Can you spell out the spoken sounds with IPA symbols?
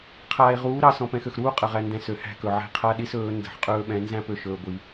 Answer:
qʰaː˨e̯ʁuː˨˦ɾɑ˨ sɔ̃˨pɛ̃˨xø˨xɾuː˦ qʼə˨ʁæ˨ndɛ̃˨ sø˨hæ̤˦kɵ˨ʕɛ̤˦ qʰa˦ɗi˦sɵː˨˦ ndə̤˨ħqʼɵː˦ɓɛ̃˨˦ nzæ̃˦pø˨ ʃɵː˨ɡʷi˨

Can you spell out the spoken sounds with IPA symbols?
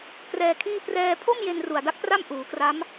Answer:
krɛː˧kʰiː˥˩ prɛː˧ pʰo˥˩mje˧n ru˨˩a̯da˦˥k̚pra˥˩m ʔuː˩˦kra˦˥m

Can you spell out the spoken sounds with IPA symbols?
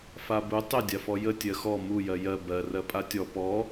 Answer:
fabu tˤɪ dʲafɔjə tʲɜxɔ mu jɜjɜ bɜ rɜpʼatʲɔ pɔ

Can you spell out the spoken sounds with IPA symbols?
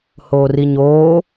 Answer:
hoːriɲoː

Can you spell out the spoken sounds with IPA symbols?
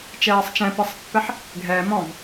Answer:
t͡ʃɛːsˤt͡ʃɛ̃pisˤpːɛħ | ɡʱɛ mɔ̃v

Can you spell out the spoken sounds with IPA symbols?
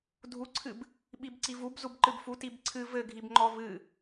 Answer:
dʱuǀʰɨb | ɓibǀivub zubǃɨbfu tibǀʰɨ vɘɡʱibŋ͡ǃɔ vɨ

